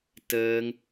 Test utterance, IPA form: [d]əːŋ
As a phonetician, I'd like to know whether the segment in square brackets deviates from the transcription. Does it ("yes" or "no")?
yes